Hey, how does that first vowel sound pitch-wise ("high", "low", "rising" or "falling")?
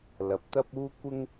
rising